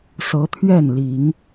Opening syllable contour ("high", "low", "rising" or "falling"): rising